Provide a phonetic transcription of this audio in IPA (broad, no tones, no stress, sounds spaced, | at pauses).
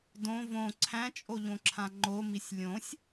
d õ v õ ǀʰ æ̃ t͡ʃʼ o ʎ õ ǁʰ ã ŋ͡ǃ o m i sʲ lʲ õ sʲ